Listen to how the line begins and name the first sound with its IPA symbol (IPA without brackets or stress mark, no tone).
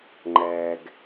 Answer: ŋ͡ǃ